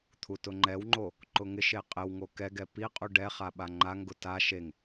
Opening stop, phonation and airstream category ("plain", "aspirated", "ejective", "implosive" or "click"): aspirated